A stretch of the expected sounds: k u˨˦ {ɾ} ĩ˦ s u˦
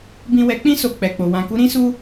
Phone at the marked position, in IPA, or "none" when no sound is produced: ɾ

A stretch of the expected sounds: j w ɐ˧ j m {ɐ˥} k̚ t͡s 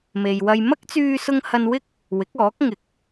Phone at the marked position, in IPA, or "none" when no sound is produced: ɐ˥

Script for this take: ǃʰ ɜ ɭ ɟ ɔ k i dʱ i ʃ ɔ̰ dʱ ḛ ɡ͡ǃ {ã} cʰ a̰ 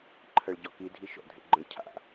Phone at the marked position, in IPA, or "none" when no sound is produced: ə̃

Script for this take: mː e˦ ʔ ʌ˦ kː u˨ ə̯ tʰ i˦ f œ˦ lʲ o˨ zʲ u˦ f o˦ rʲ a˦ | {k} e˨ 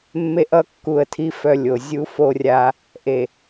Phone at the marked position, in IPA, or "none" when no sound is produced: ʔ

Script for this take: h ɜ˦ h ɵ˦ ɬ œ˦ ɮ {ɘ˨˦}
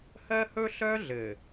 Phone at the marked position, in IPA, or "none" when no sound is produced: ɘ˨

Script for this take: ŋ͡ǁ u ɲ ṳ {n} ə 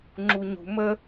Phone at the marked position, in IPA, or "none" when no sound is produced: m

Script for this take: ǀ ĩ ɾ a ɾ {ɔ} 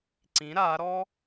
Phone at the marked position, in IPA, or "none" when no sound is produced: ɔ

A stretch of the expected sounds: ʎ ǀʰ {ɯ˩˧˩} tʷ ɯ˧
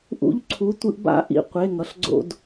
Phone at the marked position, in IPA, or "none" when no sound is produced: u˩˧˩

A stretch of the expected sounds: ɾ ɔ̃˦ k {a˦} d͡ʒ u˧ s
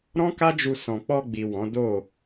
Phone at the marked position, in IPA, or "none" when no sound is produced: a˦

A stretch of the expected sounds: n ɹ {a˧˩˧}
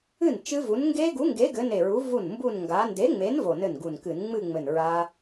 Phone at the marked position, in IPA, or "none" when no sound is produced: a˦˥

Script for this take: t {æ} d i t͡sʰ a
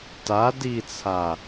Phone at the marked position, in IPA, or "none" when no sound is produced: a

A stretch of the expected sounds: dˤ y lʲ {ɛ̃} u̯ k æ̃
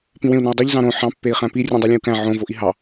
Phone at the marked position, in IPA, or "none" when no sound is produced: ẽ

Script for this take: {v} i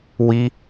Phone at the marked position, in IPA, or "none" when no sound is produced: w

